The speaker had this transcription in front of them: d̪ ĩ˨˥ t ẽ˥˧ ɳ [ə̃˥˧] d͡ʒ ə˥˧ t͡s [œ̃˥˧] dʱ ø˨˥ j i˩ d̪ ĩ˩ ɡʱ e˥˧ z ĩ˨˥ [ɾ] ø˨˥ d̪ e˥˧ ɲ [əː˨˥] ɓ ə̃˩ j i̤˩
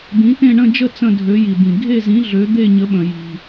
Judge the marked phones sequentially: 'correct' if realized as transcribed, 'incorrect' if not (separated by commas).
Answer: correct, incorrect, incorrect, incorrect